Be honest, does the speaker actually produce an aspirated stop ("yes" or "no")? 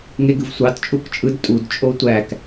no